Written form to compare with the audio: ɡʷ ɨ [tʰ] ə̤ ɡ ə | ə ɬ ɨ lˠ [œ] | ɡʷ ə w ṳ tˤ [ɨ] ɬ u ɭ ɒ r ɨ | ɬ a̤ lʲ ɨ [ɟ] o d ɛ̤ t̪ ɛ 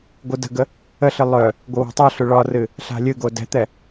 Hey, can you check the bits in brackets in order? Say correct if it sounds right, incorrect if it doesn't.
incorrect, correct, correct, incorrect

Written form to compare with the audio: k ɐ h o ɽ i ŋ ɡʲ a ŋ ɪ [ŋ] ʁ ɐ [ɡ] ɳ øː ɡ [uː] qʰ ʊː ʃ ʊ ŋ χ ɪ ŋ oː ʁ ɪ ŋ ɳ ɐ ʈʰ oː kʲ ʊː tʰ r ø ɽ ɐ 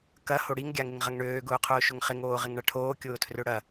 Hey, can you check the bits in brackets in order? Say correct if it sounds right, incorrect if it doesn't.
correct, incorrect, incorrect

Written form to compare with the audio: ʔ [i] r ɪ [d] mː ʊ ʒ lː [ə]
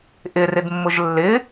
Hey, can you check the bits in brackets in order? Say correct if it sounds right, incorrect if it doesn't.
incorrect, correct, incorrect

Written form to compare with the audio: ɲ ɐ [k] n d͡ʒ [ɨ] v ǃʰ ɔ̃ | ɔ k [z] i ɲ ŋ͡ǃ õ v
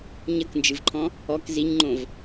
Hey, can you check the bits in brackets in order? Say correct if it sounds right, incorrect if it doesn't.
correct, correct, correct

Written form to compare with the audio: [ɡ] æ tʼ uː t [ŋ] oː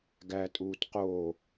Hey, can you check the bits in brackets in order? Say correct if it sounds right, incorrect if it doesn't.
correct, incorrect

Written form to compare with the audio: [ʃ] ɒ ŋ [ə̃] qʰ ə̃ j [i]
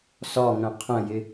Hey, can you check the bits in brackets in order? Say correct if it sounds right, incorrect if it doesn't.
incorrect, correct, incorrect

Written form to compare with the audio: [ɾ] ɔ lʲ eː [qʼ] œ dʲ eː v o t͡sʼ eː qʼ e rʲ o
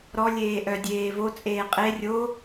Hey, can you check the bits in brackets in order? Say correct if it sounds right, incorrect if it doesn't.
correct, incorrect

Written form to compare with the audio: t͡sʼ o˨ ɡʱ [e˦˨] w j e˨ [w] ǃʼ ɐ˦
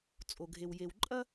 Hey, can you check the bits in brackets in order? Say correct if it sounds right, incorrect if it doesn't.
incorrect, correct

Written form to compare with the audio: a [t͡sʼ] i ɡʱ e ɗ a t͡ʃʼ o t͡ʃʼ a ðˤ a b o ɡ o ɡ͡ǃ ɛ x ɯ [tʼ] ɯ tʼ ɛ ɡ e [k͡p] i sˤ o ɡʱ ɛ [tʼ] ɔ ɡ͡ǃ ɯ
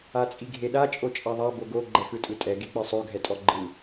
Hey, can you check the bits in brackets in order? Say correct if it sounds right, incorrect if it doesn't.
correct, correct, correct, correct

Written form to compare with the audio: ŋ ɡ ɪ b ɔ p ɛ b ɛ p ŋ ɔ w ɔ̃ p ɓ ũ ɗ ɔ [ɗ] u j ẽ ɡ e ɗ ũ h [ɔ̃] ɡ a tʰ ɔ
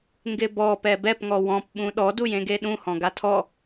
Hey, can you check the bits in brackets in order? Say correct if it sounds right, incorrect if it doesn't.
incorrect, correct

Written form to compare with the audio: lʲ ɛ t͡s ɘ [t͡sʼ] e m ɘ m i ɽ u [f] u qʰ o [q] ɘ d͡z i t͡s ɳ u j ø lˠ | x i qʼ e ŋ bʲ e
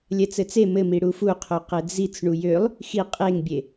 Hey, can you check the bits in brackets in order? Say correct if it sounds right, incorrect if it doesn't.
incorrect, correct, correct

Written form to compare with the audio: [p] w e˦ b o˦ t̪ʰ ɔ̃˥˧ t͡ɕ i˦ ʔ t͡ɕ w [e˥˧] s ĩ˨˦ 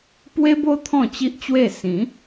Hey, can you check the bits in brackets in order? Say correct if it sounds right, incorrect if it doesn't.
correct, correct

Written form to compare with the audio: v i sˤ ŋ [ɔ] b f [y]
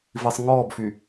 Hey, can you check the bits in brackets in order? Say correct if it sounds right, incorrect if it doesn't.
correct, correct

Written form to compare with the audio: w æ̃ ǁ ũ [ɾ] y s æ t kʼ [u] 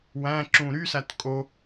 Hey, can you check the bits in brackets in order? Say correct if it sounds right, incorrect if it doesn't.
correct, incorrect

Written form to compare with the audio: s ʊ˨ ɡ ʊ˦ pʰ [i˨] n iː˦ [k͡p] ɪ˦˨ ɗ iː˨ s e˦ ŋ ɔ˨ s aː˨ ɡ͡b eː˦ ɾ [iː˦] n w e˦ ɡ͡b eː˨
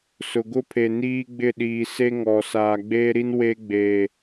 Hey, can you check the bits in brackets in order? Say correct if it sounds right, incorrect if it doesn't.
incorrect, incorrect, incorrect

